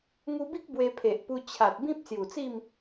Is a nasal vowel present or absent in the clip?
present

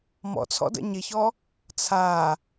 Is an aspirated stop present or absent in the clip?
present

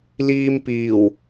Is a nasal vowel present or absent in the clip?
absent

